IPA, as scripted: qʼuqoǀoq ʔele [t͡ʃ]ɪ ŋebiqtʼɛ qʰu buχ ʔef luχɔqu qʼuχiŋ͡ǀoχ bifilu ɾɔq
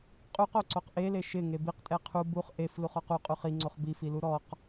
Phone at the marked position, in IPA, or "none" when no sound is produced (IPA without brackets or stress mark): ʃ